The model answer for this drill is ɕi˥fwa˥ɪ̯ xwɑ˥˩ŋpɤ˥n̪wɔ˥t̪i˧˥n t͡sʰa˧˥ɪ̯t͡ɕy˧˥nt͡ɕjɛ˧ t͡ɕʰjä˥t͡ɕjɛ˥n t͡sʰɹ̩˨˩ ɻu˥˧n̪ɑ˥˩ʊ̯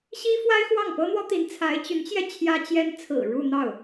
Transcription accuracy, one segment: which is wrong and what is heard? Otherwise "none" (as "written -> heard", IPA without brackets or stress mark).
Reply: none